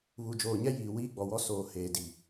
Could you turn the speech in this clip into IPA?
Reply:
βu˨d͡ʒoː˨ɲɛ˦ jiː˨wiː˦ɡ͡bɔ˨wɔ˦ soː˨ heː˨di˨

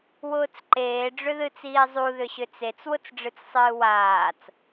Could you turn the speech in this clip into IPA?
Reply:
wʊːt͡sǃeː ɖ͡ʐʏðɨt͡siːzˤu ðʏɕʏt͡set͡s wʊt͡sɖ͡ʐɨt͡ssˤɨːwaːt͡s

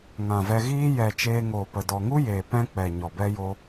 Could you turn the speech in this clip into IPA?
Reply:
ŋã˨vɛ˧ɣiː˦ jɛ˨ t͡ʃeː˧ŋoː˨pə˨ dɔ˨ŋu˦jeː˨ pɛ̃˧k͡pɛ˨ ɲɔ˨bɛ˦jo˦

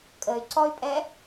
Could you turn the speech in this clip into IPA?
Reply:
kʼəy̯ǀɔy̯pʼɛ

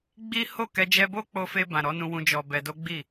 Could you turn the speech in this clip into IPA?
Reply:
ɡ͡bi˦ ho˦˨kɛ˧ d͡ʒɛ˧bo˦k͡po˧fe˧ bã˨ɾɔ˨˦nũ˧wũ˧ d͡ʒɔ˧bɛ˧ do˦ɡ͡bi˦˨

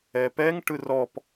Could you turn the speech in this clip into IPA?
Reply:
ɛpɛŋʈɯ rɔp

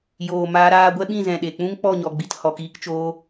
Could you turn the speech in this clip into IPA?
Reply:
joː˨ maː˧ɾaː˧ɡʷɛ˦ɓĩ˦˨ zɛ̃˨ɗe˨k͡pũ˦ŋ k͡pɔ˦˨ɲɔ˨ɡ͡bi˨t hɔ˨kiː˧kt͡ʃoː˧

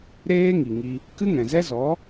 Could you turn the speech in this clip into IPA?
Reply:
ɾeː˦ ŋi˨ ŋi˧ | kɨ˦ŋɛ̃˨zɛ˦zɔ˨˦

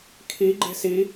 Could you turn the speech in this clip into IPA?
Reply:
kʰi ɡ͡ǃe̤si

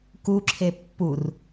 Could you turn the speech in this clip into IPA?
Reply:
kuǁʰe pːur

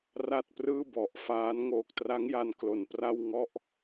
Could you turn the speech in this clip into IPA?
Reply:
ra˥˩t̚prɯː˥˩bɔ˨˩ʔfaː˦˥n ŋoː˨˩k̚tra˦˥ŋja˧n klo˨˩npra˥˩wŋɔ˥˩ʔ

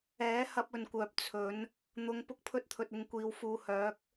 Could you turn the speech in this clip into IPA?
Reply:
ɛː˨˥ hɐ˧p̚ɵ˨nkʷœː˨p̚ t͡sʰɵ˨˥n | n̪ʊ˨˧ŋ pʊ˥k̚pʰɵ˥t̚t̪ʰɵ˧t̚ ɪ˧ŋkʷiː˨˧w fuː˨hœː˨˥k̚

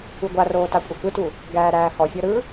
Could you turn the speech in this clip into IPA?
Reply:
uɡʷaroː takʷʼɐkɯtu | ɡæːɾæːhɔfʲɔ ɾɯ

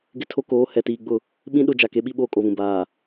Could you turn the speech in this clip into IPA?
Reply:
ɡɪ˦tʰo˦koː˨˦ hɛ˨tiː˨ ɡ͡bʊ˦˨ | ɓĩ˦ɗʊ˦˨ d͡ʒa˨ke˨˦ɓi˦ ɓoː˦kʼo˨βũ˨ baː˨

